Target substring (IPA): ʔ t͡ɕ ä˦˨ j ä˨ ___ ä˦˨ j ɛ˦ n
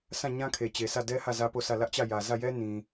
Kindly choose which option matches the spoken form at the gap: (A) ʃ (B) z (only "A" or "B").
B